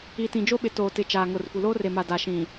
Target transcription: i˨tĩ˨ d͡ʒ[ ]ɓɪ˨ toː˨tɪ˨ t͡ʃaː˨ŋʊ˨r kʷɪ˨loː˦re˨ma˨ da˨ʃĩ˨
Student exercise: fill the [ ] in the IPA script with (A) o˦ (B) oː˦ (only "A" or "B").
A